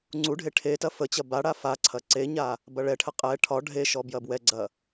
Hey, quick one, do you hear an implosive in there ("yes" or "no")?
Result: no